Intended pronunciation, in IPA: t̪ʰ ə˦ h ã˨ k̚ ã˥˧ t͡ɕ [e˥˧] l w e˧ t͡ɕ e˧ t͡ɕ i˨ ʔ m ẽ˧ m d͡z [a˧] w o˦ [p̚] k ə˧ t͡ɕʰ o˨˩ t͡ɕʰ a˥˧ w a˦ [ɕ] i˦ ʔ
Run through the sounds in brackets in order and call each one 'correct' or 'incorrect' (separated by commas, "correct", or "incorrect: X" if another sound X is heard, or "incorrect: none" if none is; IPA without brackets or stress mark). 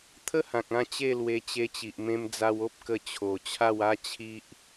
correct, correct, correct, incorrect: t͡ɕʰ